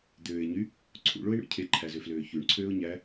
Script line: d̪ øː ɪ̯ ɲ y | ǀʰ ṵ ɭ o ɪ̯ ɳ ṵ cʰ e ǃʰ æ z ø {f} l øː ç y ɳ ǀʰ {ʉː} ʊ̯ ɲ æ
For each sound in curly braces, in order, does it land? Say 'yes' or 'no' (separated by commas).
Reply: yes, no